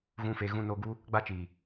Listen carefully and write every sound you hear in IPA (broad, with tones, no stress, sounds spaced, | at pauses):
ɣ ũ˨ f e˨ ɣ ũ˨ n oː˨ ɡ u˧ | ɡ͡b a˧ t͡ʃ iː˨